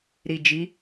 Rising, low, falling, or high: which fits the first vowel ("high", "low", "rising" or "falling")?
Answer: low